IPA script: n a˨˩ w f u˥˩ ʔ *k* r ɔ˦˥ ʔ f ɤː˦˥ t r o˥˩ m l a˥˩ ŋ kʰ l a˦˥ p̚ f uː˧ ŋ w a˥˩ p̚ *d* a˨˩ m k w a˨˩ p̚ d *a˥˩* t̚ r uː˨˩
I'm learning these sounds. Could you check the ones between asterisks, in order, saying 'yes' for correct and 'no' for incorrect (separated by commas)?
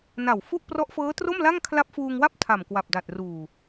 no, no, no